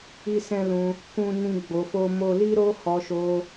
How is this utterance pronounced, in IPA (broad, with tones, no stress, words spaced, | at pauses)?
i˦sɛ̃˦lũ˧ | kũ˦nĩ˦ ɡ͡bo˧fo˦mo˦ li˦ɾo˦hɔ˧ʃo˧